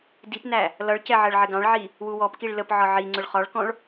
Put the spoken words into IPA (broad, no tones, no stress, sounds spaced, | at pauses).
d i p n æ | l ʌ ɭ c ɛ ʕ ɜ ɭ ʕ ɪ ɡ ɑ̃ ɭ ʕ i | w u w ɔ p k i ɭ l ə p ʕ ɒ ʕ i ŋ͡ǀ ʊ ɭ χ ɒ ɭ k ɔ̃ ɭ